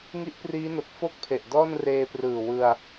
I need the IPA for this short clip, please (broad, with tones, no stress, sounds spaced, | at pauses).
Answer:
ŋ i˦˥ ʔ p r iː˦˥ n o˨˩ k̚ f o˥˩ k̚ pʰ e˨˩ ʔ d ɔː˥˩ n r eː˧ p r ɯː˨˩ w ɯ˧ a̯